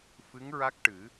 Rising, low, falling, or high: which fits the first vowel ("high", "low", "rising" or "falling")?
rising